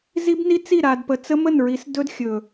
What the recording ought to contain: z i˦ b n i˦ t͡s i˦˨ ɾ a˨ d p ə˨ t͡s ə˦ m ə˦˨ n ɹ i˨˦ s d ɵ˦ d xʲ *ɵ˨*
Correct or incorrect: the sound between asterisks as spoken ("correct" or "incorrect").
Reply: correct